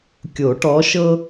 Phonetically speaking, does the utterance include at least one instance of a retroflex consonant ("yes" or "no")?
yes